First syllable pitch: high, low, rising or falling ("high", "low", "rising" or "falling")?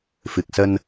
low